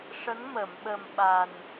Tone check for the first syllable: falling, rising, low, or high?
rising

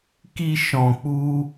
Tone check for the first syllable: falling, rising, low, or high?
low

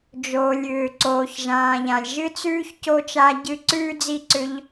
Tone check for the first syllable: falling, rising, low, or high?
low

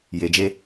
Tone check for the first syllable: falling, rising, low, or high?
low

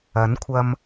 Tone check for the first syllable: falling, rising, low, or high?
rising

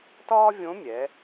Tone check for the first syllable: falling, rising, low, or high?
high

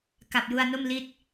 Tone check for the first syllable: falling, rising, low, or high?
low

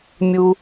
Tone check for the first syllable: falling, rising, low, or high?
low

